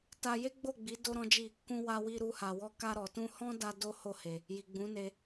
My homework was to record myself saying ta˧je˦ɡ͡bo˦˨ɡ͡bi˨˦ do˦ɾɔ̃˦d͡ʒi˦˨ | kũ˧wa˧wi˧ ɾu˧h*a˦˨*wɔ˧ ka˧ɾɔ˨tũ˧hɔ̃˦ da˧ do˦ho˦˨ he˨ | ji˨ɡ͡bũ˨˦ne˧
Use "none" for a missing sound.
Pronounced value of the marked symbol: a˨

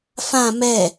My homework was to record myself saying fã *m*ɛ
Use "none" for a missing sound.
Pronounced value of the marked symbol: m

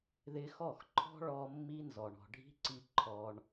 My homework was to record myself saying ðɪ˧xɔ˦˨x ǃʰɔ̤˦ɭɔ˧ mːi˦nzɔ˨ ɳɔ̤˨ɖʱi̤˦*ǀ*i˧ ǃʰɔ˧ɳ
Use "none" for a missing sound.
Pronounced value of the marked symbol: ǀ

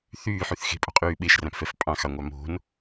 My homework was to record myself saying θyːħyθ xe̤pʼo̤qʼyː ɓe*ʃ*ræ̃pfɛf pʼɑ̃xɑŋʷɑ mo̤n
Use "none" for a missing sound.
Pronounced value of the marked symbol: ʃ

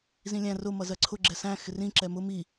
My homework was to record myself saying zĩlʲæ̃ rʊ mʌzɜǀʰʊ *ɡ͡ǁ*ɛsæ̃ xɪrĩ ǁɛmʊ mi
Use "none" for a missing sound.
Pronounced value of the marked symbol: ɡ͡ǁ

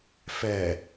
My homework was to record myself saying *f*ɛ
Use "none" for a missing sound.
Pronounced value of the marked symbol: f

